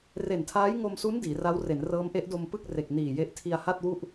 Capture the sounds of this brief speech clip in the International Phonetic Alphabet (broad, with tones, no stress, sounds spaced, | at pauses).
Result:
r e˨˩ n tʰ aː˦˥ j ŋ o˧ m s u˦˥ n d iː˩˦ r a˦˥ w r e˩˦ n r ɤː˦˥ m ʔ e˦˥ ʔ d o˧ m p ɯ˥˩ k̚ r e˨˩ k̚ n iː˨˩ j e˦˥ ʔ tʰ i˧ a̯ h a˥˩ t̚ w u˥˩ ʔ